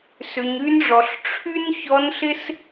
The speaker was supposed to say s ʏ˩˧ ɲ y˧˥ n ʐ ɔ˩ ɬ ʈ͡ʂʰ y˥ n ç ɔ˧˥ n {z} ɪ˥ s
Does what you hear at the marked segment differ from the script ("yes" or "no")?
yes